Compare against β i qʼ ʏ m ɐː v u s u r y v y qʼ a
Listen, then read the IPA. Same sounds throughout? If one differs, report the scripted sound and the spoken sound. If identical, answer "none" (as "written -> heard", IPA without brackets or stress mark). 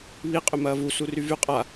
none